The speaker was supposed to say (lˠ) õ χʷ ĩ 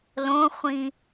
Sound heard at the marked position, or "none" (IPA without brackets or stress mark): l